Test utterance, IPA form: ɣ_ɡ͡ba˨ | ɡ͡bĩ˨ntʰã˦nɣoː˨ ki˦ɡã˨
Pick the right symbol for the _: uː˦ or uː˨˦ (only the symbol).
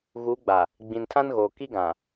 uː˨˦